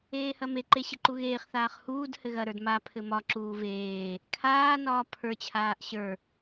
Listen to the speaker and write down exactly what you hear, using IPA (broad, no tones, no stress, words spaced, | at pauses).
eːhɐmeǃe ɕɘǃuɣeːχθaːχ huːd hɘɣɐɾə˞d ma pʰɘmɒǁuː veː | kʰaːnɒː pʰə˞t͡ɕʰaːʔ ɕə˞